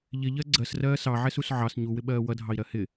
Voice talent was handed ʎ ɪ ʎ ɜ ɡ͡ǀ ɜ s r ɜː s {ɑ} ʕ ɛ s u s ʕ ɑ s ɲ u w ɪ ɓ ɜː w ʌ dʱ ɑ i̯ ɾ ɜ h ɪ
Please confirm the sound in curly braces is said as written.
yes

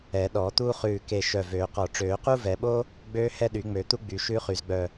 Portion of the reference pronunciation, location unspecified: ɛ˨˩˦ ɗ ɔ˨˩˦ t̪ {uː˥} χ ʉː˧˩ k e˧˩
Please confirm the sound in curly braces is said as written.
yes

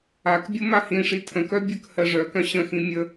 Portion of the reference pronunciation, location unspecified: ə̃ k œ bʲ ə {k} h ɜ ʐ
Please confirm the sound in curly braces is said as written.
yes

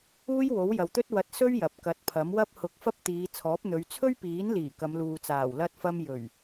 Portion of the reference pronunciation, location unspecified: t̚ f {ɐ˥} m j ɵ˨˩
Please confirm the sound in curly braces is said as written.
no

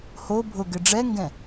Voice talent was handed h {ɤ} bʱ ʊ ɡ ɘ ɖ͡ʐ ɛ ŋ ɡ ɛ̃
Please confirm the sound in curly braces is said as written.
no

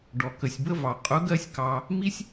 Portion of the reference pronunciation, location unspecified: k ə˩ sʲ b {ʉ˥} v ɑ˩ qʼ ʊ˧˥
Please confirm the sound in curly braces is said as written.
no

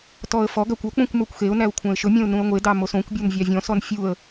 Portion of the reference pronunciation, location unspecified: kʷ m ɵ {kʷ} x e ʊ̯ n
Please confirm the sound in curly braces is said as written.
yes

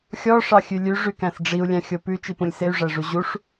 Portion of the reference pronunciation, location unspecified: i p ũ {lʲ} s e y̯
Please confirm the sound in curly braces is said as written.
yes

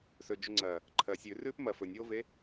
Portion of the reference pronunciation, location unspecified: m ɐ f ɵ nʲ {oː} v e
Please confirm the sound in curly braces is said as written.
yes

